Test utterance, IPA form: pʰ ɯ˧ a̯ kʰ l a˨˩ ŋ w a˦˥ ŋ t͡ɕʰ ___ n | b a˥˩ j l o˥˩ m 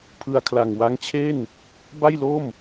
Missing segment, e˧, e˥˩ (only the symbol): e˥˩